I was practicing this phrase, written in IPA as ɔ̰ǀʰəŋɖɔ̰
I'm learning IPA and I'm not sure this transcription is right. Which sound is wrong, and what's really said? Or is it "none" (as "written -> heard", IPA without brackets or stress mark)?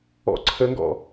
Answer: ɖ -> ɡ